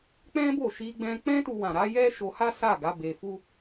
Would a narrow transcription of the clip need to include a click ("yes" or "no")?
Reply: no